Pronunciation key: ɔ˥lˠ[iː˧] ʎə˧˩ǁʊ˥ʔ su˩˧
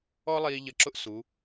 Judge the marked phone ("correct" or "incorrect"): correct